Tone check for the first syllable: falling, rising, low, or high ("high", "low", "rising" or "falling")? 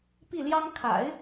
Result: falling